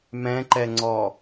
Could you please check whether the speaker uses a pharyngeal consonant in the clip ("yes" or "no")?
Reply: no